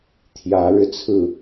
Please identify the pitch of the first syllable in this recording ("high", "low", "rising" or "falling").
rising